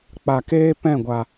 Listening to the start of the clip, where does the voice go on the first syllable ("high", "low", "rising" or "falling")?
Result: low